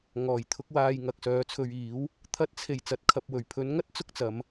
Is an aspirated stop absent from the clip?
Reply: no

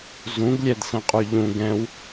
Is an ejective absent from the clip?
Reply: no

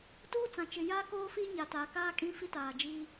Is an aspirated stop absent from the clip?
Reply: yes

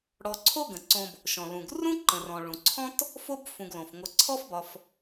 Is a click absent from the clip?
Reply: no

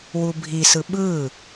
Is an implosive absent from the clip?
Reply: no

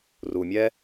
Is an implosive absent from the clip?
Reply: yes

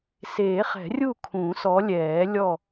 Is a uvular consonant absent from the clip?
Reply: no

